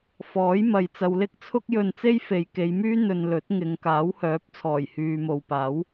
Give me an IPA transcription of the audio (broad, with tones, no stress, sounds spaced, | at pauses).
f ɔː˨˥ j m ɐ˨ j t͡s ɐ˨˧ w l ɪ˥ k̚ t͡sʰ ʊ˥ k̚ j ɵ˧ n t͡s e˥ j f e˨ j k e˨˧ j m yː˥ n̪ ɵ˧ n l ɵ˨˥ t̚ ŋ ɪ˨˧ ŋ k aː˨˥ w h œː˨˥ p̚ t͡sʰ ɔː˨˩ j h yː˨ m o˨ w p aː˨˥ w